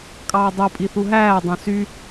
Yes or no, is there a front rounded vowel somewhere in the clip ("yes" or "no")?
yes